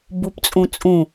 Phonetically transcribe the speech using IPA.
b u p t͡sʼ ũ t͡sʼ ũ

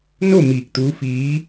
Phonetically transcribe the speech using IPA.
n o˥˨ m iː˧˩ k̚ t̪ uː˧˥ f iː˧˥

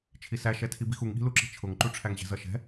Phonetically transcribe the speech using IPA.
t͡ʃʰ i s æ ʃ ɛ tʰ i b i x u ŋ ɠ i̤ l u ǁ i̤ t͡ʃʰ ʊ ŋ ǃ u ʈ͡ʂʰ æ ŋ ʑ ɛ̤ z ʌ ʃ ɛ̤

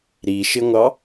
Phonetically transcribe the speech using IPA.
ɾ i ʃ ɪ ŋʷ ɑ

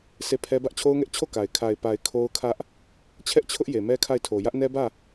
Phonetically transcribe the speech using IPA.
sʰ e˦˨ pʰ ɛ˦ b ä˦ ʔ t͡ɕʰ o˦ ʊ̯ ŋ ɛ˦ ʔ t͡ɕʰ o˦˨ k a˨ ɪ̯ kʰ a˨ ɪ̯ p a˨ ɪ̯ kʰ o˦ ʊ̯ kʰ ä˦ ʔ | t͡ɕʰ ɛ˦ ʔ t͡ɕʰ ʊ˦ ʔ j e˨ m ɛ˦ kʰ a˦˨ ɪ̯ tʰ o˨ j ä˦ ʔ n ɛ˦ b ä˦˨

